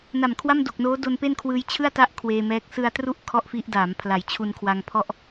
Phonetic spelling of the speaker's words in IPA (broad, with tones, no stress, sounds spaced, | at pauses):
n a˨˩ m kʰ w a˥˩ m d o˨˩ k̚ n oː˦˥ d o˧ n p e˥˩ n kʰ w ɯː˧ j t͡ɕʰ ɯ˥˩ a̯ t a˦˥ ʔ kʰ w eː˧ m ɛː˦˥ k̚ s ɯ˧ a̯ t r u˥˩ ʔ kʰ ɔ˥˩ ʔ f i˦˥ ʔ d aː˩˦ m pʰ l a˩˦ j t͡ɕʰ u˧ n kʰ w a˧ ŋ pʰ ɔ˥˩ ʔ